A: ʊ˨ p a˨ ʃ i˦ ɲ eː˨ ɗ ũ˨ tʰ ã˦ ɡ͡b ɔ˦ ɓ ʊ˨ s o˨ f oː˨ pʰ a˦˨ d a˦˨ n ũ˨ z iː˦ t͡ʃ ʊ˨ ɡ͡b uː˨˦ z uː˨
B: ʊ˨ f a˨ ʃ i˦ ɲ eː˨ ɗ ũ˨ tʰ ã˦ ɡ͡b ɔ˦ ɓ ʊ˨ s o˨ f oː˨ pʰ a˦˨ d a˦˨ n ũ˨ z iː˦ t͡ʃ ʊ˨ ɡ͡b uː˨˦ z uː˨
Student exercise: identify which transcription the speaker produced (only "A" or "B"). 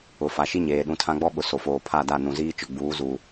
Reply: B